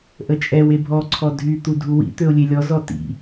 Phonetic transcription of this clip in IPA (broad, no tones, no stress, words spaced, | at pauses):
ʔət͡ʃʼɛw ebʱɔ ǀʰɔdʱy t̪udʱuwḭ t̪øʊ̯lʲelʲɔ zɔtḭ